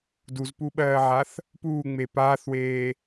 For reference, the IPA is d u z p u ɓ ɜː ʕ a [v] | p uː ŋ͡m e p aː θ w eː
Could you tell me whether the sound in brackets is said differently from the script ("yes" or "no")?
yes